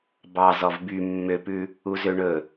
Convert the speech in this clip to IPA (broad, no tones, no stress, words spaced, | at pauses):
bɑzɔv by mːøpʉ | uzøɳɵ